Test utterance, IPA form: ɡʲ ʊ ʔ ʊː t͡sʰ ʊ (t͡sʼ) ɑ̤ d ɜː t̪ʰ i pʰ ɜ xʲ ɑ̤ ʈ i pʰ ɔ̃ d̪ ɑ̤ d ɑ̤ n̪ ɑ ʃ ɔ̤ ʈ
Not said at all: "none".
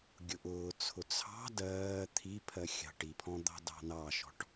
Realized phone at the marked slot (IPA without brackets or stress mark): t͡sʰ